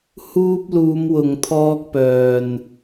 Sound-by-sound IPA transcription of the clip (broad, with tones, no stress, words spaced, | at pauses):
huː˧p̚luː˨˧mwʊ˨ŋt̪ʰɔː˧k̚ pœː˨n